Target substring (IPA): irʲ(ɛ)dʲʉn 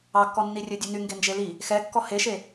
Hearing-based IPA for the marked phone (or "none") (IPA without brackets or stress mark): ø